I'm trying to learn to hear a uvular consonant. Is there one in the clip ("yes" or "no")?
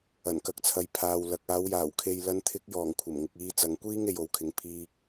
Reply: no